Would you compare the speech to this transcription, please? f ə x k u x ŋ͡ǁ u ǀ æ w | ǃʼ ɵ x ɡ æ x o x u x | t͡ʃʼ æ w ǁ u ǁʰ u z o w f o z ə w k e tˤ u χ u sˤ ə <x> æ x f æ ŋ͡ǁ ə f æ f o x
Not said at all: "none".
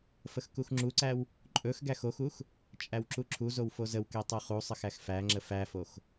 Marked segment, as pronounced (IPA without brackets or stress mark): x